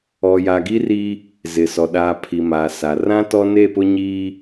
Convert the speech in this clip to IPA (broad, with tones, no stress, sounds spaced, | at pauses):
ɔ˨ j a˨ ɡ i˦ r i˦ | z ɪ˨ s ɔ˨ ɗ aː˨ pʰ i˨ m aː˨ s a˨ r ã˦ t ɔ˦ n e˦˨ p ʊ˦ ɲ iː˦